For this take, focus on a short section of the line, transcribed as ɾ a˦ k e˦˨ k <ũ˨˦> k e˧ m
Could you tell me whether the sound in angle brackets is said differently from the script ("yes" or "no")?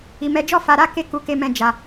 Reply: yes